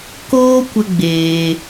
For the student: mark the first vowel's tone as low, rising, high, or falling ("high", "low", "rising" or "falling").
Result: high